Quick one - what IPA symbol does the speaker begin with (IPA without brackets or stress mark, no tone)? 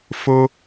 f